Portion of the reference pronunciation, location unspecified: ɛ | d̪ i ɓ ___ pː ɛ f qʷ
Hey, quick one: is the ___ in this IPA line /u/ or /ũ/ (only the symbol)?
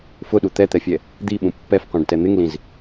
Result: ũ